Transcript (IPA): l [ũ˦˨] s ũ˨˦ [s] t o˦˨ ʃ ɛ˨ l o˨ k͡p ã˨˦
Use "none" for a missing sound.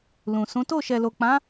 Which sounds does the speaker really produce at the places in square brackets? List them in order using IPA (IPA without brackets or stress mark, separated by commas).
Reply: ũ˨, none